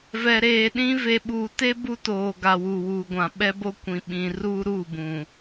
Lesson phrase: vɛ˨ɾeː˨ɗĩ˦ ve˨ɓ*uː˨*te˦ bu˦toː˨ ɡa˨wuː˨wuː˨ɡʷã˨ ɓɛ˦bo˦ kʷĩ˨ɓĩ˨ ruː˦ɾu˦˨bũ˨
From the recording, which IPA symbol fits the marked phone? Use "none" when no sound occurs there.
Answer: uː˨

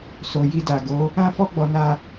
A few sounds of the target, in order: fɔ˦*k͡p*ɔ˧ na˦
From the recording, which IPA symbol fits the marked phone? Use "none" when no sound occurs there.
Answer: ɡ͡b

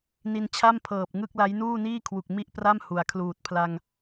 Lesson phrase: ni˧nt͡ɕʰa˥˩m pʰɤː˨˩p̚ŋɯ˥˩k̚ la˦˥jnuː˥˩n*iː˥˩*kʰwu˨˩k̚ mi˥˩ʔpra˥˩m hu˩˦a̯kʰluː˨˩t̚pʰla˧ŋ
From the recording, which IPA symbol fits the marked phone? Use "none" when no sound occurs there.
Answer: iː˥˩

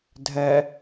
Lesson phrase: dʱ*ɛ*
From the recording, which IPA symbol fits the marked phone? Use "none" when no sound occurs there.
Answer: ɛ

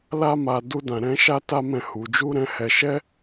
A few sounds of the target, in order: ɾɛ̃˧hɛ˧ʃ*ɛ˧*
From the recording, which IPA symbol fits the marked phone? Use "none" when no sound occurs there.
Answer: ɛ˦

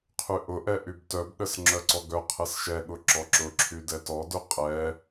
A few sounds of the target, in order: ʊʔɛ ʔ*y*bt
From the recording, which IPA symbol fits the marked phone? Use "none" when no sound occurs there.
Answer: y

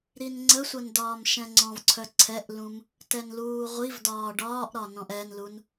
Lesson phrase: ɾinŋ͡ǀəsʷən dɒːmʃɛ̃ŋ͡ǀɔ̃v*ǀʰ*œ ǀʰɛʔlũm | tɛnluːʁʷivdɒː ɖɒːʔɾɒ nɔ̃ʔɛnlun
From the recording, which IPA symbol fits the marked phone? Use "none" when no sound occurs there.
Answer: ǀʰ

